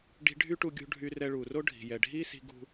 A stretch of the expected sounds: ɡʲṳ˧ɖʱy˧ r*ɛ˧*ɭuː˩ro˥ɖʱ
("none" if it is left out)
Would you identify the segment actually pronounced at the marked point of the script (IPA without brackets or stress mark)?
ɛ˧